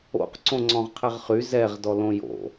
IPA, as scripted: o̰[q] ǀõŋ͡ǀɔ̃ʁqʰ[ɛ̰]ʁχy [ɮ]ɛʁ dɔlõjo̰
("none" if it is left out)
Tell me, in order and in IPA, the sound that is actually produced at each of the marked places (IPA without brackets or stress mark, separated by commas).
q, ɛ, z